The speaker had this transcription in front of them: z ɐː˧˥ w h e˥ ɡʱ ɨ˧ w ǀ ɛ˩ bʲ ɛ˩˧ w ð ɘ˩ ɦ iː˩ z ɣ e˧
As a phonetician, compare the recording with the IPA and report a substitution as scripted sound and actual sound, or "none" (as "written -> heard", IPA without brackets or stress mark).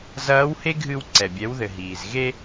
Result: none